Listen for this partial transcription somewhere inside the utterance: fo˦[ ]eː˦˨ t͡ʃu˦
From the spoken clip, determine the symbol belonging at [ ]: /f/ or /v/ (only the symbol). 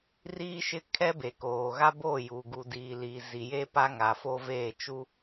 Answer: v